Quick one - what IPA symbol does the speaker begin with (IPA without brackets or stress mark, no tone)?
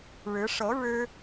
ɻ